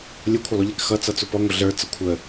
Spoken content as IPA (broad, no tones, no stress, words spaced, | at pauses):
lʲʊkʷʰəlˠʊʎɛk xʌt͡sʌt͡sʊ pɔŋʷʌ ɮə˞t͡sʌ kʷʰə